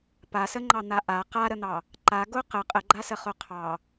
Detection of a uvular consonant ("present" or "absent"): present